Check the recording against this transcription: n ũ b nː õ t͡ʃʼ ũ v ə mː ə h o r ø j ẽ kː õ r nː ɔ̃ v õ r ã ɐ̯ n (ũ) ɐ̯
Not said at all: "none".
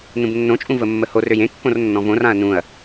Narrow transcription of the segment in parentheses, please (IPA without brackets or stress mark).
ũ